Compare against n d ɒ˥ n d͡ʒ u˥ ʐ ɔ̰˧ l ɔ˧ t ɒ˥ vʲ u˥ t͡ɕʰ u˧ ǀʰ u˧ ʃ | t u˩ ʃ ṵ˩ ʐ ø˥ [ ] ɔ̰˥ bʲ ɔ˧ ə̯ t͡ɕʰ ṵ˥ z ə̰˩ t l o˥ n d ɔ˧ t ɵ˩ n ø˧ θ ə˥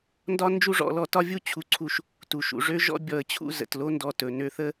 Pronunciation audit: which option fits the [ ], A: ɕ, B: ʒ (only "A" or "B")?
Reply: B